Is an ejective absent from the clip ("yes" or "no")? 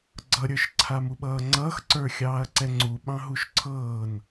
yes